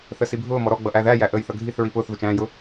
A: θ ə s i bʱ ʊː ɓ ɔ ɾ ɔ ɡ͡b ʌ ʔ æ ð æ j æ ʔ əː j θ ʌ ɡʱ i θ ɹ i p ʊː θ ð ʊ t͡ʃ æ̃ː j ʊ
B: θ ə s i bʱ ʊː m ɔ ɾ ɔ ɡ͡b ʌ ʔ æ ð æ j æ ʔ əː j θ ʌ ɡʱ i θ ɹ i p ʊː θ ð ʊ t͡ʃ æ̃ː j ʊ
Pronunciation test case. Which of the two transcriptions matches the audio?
B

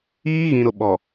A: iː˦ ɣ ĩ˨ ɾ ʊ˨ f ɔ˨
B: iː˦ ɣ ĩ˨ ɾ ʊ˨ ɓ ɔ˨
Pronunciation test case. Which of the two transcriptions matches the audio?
B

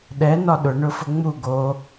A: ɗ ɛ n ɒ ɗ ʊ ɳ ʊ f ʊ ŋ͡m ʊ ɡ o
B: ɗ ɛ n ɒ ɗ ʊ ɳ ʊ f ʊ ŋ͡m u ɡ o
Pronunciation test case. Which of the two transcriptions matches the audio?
B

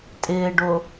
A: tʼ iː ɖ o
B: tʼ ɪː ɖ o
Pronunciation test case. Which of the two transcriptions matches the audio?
B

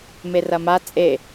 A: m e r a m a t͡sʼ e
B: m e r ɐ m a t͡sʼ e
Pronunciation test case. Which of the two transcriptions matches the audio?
B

